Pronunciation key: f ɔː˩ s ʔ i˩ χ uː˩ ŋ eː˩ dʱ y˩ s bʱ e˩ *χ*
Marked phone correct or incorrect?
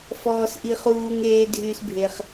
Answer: correct